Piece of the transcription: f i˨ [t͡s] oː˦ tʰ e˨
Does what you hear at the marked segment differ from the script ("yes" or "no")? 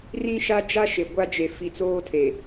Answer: no